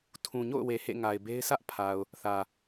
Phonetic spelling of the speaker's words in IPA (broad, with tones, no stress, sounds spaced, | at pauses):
tʰ ũ˨ ɲ o̰˦˨ ʊ̯ w e˨ h ḛ˦˨ ŋ a˨ ɪ̯ b e˦ ɪ̯ s ä˦ ʔ pʰ a˨ ʊ̯ | θ ä˨